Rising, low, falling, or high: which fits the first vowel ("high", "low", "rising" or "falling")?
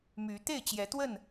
rising